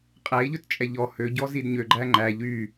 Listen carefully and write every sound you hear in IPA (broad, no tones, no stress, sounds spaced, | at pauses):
qʼ æ i̯ ʎ ɵ t t͡ʃʼ ɛ ʎ ɔ h ø ɟ ɔ z i d ɲ ø ɡ͡ǃ æ ŋ͡ǃ æ ʎ y